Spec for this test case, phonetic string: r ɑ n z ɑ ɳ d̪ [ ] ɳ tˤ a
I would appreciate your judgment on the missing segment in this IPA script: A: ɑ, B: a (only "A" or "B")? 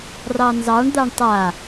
B